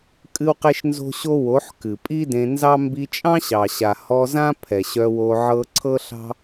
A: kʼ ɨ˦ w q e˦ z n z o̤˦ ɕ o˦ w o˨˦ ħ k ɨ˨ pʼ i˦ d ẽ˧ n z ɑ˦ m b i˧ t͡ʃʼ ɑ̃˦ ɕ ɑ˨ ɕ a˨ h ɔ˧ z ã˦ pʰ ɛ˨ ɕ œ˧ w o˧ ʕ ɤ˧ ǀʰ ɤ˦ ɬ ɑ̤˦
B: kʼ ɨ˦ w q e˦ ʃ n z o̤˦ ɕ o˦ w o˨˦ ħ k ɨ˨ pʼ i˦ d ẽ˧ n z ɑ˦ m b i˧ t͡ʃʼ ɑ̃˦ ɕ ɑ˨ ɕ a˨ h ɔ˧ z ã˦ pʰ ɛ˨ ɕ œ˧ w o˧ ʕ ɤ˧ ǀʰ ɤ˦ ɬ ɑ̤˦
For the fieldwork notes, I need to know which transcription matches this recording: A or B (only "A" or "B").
B